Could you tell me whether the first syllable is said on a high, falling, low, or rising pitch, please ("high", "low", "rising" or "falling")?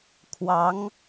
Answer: rising